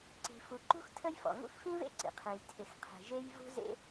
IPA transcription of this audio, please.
ǀi̤˩fu˩ǃṳ˥x tʰə˥jfɔ̰˩ ŋṵ˥xfĩ˥vḛ˥ ǀḭ˩qʰẽ˩j tʰɪ˩xqʰe̤˩ʒe˥j vṳ˥zḛ˥

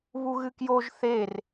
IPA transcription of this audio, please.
βuɣɨkjoʒ θer

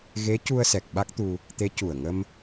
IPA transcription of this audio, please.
ɣe˧˥ cu˧ə̯sɛ˨˩k̚ ɓa˦˥k̚t̪u˧ | t̪e˧˥ cu˨˩ə̯ŋə˧m

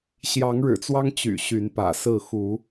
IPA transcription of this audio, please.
ɕjɑ˨˦ŋɻɻ̩˨˩t͡swɑ˦ŋ t͡ɕy̰˨˩ɕy˨˦npä̰˨˩sɹ̩˥˨ xu˨˦

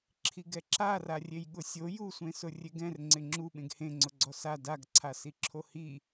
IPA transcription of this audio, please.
ǁʰiɡɛǁara rʲejɠʊsʲo jusʷẽ sʊrʲeɡɛ̃r ŋ͡ǀɪŋ͡ǁu ɓẽɡhẽ ŋ͡ǀʊɡ͡ǀɔsa daɡǀʰasiǁʰo hi

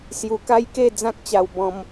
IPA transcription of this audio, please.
sju˧ka˦jke˥˧ d͡zã˦k̚t͡ɕa˧wbɔ̃˧m

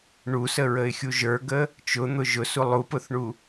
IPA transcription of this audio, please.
ɳusəɹəɪ̯xʲu ʒə˞ɡə | t͡ʃʊn̪ʊ ʒʊsu lˠupʊθɳu

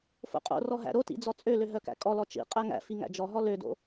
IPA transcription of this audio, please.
fo̰qʼo̰rɔ ɦæ̰ɾotḭ d͡zɔt͡sʼølø ɦœkæ̰kʼɔlɔ t͡ʃḭ qʼæŋæ̰fi ŋæ̰d͡ʒɔɦɔ lødo̰

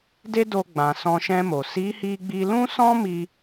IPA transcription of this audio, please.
de˦do˧ɡ͡bã˨ sɔ̃˧ʃɛ̃˧mo˨ si˨˦hi˧ɡ͡bi˧ lũ˦sɔ̃˦mi˧

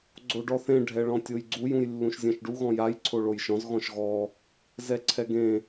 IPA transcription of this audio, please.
ɡ͡ǀoɖɔθẽ ɖʱɛɭɔ̃tʲojɡ͡ǀuj ũjlːũʃzʲɛ̃ʃɖu ɣɔ̃jaj ǀʰoɭojʃɔ̃z ɣɔ̃ʃɣɔ | zɛǀʰɛɡẽ

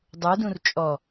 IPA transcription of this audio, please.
dˤudũr t͡ʃʼɔ

